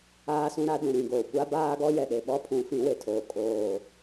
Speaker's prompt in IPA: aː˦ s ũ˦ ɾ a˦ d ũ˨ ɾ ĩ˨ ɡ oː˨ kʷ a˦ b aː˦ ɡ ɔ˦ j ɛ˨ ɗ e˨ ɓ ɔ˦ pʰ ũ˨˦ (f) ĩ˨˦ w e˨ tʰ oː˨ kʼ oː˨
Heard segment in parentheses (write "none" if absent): f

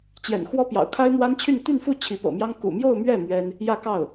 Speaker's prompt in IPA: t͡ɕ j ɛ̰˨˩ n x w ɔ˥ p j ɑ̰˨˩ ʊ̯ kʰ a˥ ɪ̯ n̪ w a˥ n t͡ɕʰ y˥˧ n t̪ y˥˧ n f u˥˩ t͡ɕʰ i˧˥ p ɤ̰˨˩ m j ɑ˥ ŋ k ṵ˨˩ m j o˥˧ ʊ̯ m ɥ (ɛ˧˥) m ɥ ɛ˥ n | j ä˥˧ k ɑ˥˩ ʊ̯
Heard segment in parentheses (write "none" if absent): ɛ˥˩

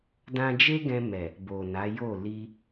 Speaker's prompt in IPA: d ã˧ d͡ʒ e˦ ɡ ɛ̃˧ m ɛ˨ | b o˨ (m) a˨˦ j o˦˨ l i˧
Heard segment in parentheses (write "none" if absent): n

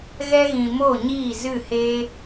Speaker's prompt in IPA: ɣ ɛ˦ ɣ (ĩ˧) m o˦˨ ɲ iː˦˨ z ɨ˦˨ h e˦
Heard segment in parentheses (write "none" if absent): ĩ˧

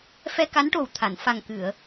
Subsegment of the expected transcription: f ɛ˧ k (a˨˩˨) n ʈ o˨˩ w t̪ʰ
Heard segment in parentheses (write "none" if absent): a˧˥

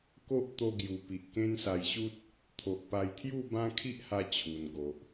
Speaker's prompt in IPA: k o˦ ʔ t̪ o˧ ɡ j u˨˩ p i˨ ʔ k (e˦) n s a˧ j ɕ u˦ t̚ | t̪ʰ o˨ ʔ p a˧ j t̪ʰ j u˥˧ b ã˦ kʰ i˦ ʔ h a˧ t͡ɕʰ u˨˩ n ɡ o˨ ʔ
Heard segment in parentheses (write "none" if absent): ẽ˦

